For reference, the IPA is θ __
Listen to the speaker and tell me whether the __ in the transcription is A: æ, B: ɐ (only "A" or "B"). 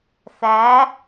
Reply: A